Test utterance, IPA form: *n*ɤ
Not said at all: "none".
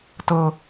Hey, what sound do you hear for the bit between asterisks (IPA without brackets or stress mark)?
t